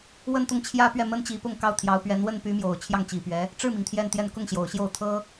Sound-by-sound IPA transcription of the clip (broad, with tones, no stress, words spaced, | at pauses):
wə˥˧nt̪ʊ˥˩ŋ t͡ɕʰjä˥ pɥɛ˥˩mə˥n t͡ɕi˧˥pʊ˥˧ŋ kɑ˥˩ʊ̯ t̪ʰjɑ˧˥ʊ̯pɥɛ˧˥n wə˥˩npy˧˥mjo˨˩ʊ̯ t͡ɕʰjɑ˥˩ŋt͡ɕi˨˩pɥɛ˧˥ | ʈ͡ʂɻ̩˥˩mi˩ŋ t̪ʰjɛ˥˧nt̪jɛ˥˧n kʊ˥˩ŋɕjo˨˩ʊ̯ɕjo˥˩ʊ̯ t̪ʰɤ˥